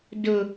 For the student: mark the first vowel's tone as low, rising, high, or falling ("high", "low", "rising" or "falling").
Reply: low